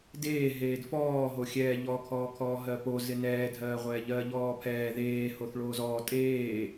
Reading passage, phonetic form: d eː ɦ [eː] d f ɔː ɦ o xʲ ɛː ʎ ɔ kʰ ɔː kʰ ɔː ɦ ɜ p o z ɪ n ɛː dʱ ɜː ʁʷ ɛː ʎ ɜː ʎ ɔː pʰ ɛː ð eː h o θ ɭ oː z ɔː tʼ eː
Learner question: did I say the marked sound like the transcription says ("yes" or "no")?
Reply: yes